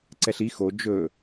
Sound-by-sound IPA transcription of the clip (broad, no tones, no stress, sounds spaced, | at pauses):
ǀ ɛ ɬ i x o d͡ʒ ɵ